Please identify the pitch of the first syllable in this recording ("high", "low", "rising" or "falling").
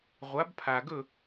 rising